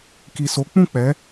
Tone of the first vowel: low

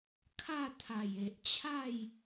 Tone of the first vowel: falling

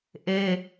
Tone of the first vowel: high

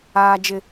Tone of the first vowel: high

